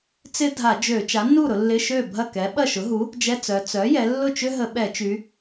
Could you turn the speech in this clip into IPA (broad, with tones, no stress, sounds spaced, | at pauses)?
t͡s ɪ˥ dʱ a˧˩˧ d͡ʒ ø˧˩˧ t͡ʃ a˩˥ nː u˥˩ ɾ ʊ˩˧ lː ɪ˧˥˧ ʃ ø˥˩ bʱ ɐ˥˩ k ɛ˩˥ ɓ ɐ˥˩ ʃ ʊ˩˥ ɦ u˩˥ | d͡ʒ ɛ˧˥˧ t͡s œ˩˧ t͡s œ˩˥ j ɛ˩˧ lː ʊ˥˩ t͡ʃ ʏ˥ ɦ ə˧˩˧ ɓ ɛ˧˩˧ t͡ʃ y˩˧